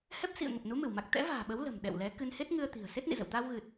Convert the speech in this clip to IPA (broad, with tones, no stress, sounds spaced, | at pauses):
h ɛ˦˥ p̚ s ḭ˧˨ ə̯ ŋ ə˨˩ p̚ n u˨˦ m ɨ˧˩ w m a˨˩ k̚ t̪ ɛ̰˧˥ v a̤ː˨˩ ɓ ə˨˦ w l ə̤˨˩ m ɗ ɛ̰˧˨ w l ɛ˨˦ k ɨ˧ n h e˦˥ t̚ ŋ ɨ˧ ə̯ t̪ i̤˨˩ ə̯ s e˦˥ t̚ n ḭ˧˨ z ə̰˧˨ w t̪ aː˧ w ɣ ɨ˨˩ t̚